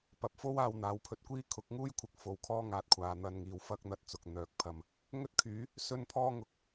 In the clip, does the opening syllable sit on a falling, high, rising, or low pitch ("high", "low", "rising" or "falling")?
rising